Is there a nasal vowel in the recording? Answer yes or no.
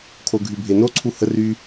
no